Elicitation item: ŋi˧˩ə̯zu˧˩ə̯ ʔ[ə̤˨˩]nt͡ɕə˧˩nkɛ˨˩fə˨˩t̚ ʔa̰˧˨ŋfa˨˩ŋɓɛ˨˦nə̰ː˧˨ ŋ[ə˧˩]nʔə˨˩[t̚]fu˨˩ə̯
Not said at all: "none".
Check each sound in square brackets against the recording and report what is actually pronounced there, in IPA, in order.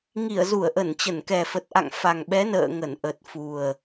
ə˧˩, ə˧˩, t̚

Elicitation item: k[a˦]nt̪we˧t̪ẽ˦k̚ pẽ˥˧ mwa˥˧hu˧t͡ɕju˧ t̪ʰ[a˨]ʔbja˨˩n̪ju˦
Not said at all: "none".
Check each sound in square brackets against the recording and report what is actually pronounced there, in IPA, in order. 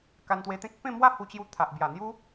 a˧, a˨

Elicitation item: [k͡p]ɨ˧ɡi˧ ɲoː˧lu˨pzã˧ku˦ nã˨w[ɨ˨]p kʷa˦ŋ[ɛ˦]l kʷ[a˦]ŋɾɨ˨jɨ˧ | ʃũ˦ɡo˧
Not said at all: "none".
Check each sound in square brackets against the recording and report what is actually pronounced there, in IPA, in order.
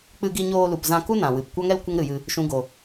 k͡p, ɨ˨, ɛ˦, ə˦

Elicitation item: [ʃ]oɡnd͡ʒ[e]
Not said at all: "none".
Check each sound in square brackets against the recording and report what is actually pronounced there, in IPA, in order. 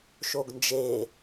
ʃ, e

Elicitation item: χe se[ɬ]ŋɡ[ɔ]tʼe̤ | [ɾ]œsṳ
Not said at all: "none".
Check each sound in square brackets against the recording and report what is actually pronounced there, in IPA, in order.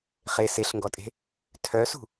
ɬ, ɔ, tʰ

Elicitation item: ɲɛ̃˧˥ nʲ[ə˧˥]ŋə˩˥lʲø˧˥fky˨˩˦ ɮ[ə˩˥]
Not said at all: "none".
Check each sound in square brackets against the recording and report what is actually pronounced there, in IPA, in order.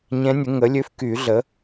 ə˩˥, ə˩˥

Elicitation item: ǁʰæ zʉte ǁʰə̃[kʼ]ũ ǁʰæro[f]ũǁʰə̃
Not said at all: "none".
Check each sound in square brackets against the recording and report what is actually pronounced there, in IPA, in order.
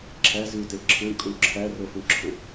kʼ, f

